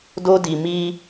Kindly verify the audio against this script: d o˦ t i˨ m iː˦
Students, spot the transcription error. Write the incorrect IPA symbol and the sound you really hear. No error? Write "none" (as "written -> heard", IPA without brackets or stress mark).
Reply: t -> d